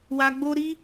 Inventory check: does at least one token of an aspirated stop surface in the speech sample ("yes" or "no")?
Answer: no